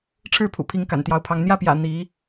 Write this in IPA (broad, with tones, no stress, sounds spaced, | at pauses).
ʈ͡ʂʰ ɻ̩˥˩ pʰ ṵ˨˩ pʰ i˧˥ ŋ k a̰˨˩ n t̪ j ɑ˧˥ ʊ̯ pʰ ɑ˧˥ ŋ n̪ j ä˥˩ p j ä̰˨˩ n̪ i˧˥